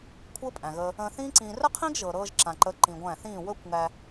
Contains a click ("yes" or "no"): yes